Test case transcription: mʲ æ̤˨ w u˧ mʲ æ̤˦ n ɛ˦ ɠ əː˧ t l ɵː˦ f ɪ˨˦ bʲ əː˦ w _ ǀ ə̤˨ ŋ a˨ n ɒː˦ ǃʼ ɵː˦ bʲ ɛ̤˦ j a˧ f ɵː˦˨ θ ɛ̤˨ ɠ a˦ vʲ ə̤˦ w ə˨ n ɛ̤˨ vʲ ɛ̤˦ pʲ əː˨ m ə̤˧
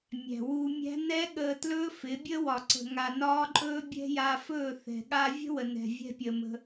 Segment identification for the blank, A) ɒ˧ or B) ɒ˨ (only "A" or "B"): B